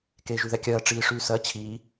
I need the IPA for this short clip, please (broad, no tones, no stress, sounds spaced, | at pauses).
k eː ʒ y ð ɛ kʲ ɜː ʈ͡ʂ iː ʂ yː s ɜ t͡ɕʰ iː